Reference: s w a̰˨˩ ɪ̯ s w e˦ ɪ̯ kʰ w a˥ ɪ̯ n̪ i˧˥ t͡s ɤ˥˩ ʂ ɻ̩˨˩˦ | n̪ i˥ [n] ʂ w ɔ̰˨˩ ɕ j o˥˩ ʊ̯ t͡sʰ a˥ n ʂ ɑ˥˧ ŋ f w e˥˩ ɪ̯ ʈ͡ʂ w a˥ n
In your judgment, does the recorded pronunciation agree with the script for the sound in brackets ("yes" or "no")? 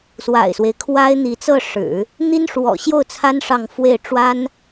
yes